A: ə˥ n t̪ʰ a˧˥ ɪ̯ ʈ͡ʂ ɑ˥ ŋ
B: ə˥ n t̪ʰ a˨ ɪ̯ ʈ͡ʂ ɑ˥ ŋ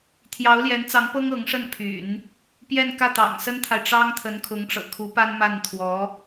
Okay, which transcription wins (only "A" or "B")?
B